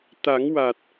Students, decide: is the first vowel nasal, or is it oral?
oral